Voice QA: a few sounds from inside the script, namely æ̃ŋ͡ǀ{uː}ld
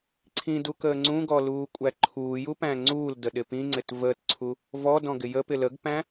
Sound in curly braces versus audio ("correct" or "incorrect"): correct